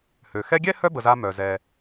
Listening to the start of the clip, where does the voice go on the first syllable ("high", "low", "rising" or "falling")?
low